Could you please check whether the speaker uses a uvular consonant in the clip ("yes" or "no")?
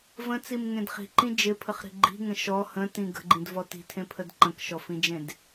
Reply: yes